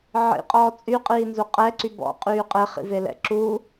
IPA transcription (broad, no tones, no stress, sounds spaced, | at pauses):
ʕ ḭ qʼ ɔː t͡sʼ y qʼ iː n z u qʼ ɛ ǀ y b ɔ̰ qʼ yː qʼ e χ ḭ v e l ɛ̰ ǁ u